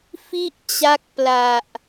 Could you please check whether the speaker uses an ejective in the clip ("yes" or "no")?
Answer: no